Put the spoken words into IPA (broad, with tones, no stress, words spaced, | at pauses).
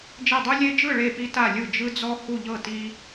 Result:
d͡ʒe˥˨dˤu˥ lʲe˥ d͡ʒɯ˥˨ ɭe˥˨pi˥ ta˥˨lʲɯ˥˨ d͡ʒɯ˥d͡zɔ˥ hu˥˨ʎɤ˥˨ ti˥